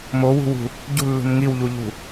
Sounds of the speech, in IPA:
mowṳwṳ | ɟṳlːṳn ŋiwʎuʎṳ

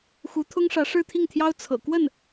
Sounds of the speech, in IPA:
xu˧˥t̪ʰʊ˥ŋʂä˧˥ ʂɻ̩˥˧t̪ʰi˥˩ŋt̪ʰjɑ˥ʊ̯ t͡sʰɤ̰˨˩ kwə˥˩n

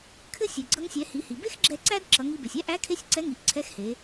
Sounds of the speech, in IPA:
kʰɘ˥sʲɘ˩ ɡ͡ǀʌ˧ŋsʲɛ˩˧ hi˩˧hi˩ be˥xɡ͡ǁɛ˧ ǀæ˥d ǁʌ˩˧ŋi˧be˩sʲ æ˥ʔæ˧˥kʰe˧˥sʲ ǀɛ˧˥ŋi˩˧ʔǀʰɛ˧˥xhe˩˧

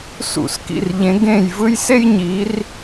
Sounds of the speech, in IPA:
sṵ˧˩˧skḭ˦˨rʎẽ˨˦ ɡẽ˦˨jvɯ˥j se˥jɲi˨˦r

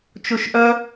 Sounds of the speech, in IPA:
t͡ʃoʃʔœ

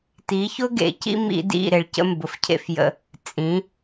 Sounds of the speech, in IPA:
ti˨˦çʊ˦ɡḛ˨cḭ˦ mḭ˦dḭ˦˨ɾe˨ɭ cə̰˦mbʊ˨fcʰḛ˦fjə̰˦ | t͡sʼĩ˨˦

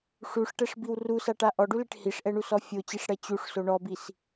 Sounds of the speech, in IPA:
ʂuʂʈɛʂbiw rusaʈa ʔɔɖuleʈ hiʂʔɛɳusɔ fʲot͡ɕiʂɽɛ t͡ɕuʂso ɳɔbis

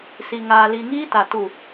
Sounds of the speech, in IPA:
si˨ŋaː˨li˨ ŋiː˦ta˨ tu˨

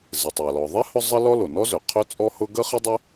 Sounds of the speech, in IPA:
zɪ˩tˤa˩lɔ˩ðˤɛ˥ hʊ˥zˤə˥lɔ˥ lo˩nɔ˥zø˩ qʰø˥t͡sʼɔ˥hʊ˥ ɡə˥χɪ˥dˤɪ˥

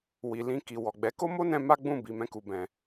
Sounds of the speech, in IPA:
wi˨lĩ˧ki˨ wɔ˨ɡ͡bɛ˨˦ ko˦mo˦ nɛ̃˦ ma˦ɡ͡bũ˦˨ bi˨˦mɛ̃˦ku˧bɛ̃˧

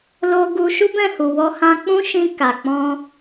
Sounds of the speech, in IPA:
lo˦ ɡu˧ ʃu˦bɛ̃˦˨hu˨ wɔ˧ hã˧k͡pũ˦ʃĩ˧ ka˨k͡pɔ̃˧

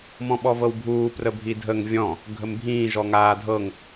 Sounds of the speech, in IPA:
mɔ̃ɓɔvɤwbʱuː prəbʱidʱəŋ vʲɔ̃ | ɡʱəmbʱĩː ʒɔŋaːdʱɤŋ

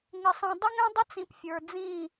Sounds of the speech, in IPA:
ŋɪ˨sˤĩ˨ dˤə˦ŋɛ̃˦dˤə˦t͡sĩ˨p fʲə˞˨d͡zĩ˦˨

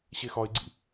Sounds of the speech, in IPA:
ɕexɒɪ̯ɡ͡ǀḭ

